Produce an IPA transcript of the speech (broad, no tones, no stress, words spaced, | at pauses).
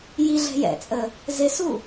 jiɮɛ̤ jɛ̰t͡sʼə | zɪsu